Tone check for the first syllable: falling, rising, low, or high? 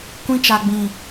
high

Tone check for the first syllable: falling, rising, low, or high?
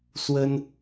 high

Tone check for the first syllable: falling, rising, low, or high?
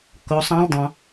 rising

